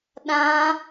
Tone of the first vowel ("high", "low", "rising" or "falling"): high